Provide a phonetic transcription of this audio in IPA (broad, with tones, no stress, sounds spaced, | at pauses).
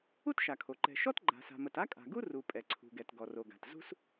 u˥ t ʃ a˩ kʰ o˩ ǃ ɛ̤˩ ʃ ɔ˥ t ɡ͡ǃ a̤˩ s a̤˩ m ə˩ t a˥ kʼ a̤˩ ɡ u˥ r u˩ pʼ ɛ˩ ǀʰ ṳ˩ ɡ ɛ˩ t ɡ ɔ˩ r o˩ ɡ a̤˩ t z ṳ˥ s